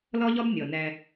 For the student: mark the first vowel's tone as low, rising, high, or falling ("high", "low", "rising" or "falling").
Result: high